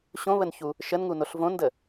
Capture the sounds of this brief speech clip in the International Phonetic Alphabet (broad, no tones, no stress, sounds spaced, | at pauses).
ɕ õ β ə n ç u | ʃ ə n ŋ u n o ɬ v õ n d ə